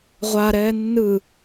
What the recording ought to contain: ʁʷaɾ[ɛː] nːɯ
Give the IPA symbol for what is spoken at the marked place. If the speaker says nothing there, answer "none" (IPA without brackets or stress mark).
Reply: ɛː